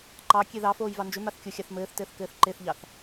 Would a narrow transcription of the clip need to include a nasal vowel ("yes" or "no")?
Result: no